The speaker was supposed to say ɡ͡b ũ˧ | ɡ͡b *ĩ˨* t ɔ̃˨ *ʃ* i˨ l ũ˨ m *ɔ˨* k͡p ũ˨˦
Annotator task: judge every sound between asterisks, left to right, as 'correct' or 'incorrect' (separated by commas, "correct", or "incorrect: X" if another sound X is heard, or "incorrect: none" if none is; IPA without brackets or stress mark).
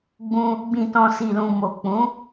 correct, incorrect: s, incorrect: o˨